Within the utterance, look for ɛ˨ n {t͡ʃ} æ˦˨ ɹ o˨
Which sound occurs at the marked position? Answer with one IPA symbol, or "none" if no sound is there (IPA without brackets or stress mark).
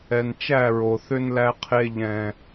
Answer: t͡ʃ